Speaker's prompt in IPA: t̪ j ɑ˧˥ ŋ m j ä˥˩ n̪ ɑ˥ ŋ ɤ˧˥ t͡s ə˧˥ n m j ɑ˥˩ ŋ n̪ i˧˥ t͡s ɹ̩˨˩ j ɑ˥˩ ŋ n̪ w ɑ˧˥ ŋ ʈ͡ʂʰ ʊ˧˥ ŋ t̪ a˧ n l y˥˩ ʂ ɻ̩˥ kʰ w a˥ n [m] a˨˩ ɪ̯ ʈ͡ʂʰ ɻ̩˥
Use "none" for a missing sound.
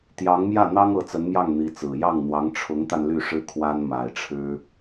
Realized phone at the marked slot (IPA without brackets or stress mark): m